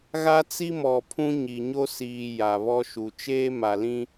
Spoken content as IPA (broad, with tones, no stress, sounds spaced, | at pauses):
ɣ a˦ t͡s i˦ m ɔ˨ pʰ ũ˦ ɲ i˨ ɲ o˦ s iː˨ j a˨ β ɔ˦ ʃ u˨ t͡ʃ eː˦ m a˨ l ĩ˦